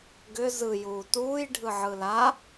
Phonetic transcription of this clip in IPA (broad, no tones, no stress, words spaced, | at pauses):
ɡʏ zɯjuː tuːjɖʱɯʕɯ la